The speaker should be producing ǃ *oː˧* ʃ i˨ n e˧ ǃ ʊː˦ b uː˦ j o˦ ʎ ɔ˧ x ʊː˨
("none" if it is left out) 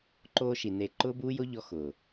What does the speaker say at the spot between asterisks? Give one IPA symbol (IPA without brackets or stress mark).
oː˧